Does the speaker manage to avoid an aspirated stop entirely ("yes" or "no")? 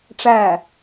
yes